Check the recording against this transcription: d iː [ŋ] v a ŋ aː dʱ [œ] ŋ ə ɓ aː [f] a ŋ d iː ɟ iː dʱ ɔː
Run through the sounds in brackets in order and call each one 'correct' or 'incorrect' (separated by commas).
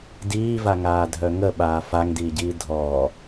incorrect, correct, correct